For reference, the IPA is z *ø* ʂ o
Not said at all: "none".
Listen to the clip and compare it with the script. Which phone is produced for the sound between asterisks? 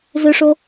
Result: ø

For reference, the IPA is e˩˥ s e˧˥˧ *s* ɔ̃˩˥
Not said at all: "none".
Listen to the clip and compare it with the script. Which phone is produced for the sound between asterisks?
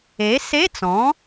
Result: t͡s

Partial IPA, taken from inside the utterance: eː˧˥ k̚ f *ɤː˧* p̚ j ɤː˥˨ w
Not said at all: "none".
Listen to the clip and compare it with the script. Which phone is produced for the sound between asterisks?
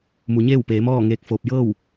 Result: oː˧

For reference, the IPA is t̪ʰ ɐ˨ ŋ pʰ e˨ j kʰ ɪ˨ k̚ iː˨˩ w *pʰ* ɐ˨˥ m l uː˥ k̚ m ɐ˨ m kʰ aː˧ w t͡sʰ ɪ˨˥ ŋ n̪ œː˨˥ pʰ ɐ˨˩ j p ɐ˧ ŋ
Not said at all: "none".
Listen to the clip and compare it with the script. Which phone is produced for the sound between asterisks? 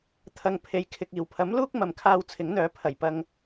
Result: pʰ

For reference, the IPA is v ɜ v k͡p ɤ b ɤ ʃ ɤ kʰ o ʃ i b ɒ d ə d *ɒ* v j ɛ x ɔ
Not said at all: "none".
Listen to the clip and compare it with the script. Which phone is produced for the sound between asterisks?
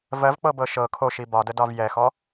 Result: ɒ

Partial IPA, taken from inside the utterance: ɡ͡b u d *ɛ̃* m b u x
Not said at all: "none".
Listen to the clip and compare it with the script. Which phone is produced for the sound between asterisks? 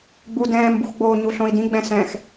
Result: ɛ̃ː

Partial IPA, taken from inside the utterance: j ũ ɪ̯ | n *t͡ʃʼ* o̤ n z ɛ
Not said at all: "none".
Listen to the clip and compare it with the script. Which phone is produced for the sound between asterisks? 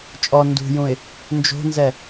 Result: d͡ʒ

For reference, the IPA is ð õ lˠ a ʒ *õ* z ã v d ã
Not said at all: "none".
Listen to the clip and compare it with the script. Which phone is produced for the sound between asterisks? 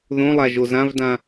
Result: o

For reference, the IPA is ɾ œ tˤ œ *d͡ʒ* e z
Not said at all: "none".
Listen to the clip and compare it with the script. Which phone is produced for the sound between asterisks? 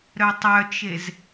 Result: t͡ʃ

